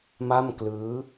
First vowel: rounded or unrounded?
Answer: unrounded